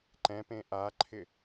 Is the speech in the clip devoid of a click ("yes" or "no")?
no